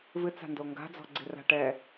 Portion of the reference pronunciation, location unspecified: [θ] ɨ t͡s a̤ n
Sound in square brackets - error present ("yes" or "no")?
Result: yes